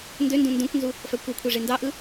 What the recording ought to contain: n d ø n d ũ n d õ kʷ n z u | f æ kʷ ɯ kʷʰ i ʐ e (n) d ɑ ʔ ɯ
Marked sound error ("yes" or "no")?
no